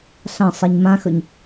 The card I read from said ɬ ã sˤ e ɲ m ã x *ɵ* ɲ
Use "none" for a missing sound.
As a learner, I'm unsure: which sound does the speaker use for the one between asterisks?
ɵ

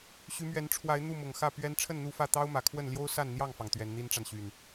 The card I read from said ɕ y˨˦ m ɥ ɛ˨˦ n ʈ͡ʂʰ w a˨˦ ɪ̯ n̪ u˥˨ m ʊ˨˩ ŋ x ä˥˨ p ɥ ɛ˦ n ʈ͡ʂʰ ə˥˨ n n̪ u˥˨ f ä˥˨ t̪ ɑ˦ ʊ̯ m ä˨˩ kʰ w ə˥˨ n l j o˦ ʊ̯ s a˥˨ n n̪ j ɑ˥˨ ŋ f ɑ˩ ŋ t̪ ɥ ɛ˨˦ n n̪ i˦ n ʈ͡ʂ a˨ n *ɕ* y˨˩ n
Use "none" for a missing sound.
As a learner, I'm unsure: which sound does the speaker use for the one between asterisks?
ɕ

